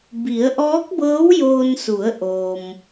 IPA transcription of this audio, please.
b i˩˧ ə̯ ʔ ɔː˧˥ k̚ b ɤː˧˥ w j oː˧ n s u˩˧ ə̯ ʔ oː˩ m

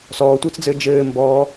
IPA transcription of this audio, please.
s ɔː tʷ ɘː t͡s d͡z ɘː d͡ʒ ɘː m b ɔː

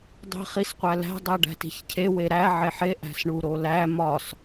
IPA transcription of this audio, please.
dˤ i̤ χ i s qʷ æ l æ̤ dˤ æ ɖ æ̤ t i̤ ç cʰ e w e ɾ æ ʕ e ħ e ʔ æ̤ s ɳ u ɾ o l æ m ɒ s

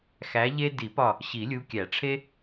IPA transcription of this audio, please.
x æ˨˦ ʎ e˦ d i˨˩˦ p ɒ˧˩ | ɕ i˨˩˦ lʲ u˨˦ kʲ æ˨˩˦ ʈ͡ʂʰ e˦

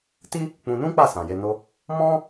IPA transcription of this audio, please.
t i˦ | k͡p ũ˧ n ũ˦ k͡p a˦˨ s ã˨ j e˧ n o˧ | m ɔ̃˦

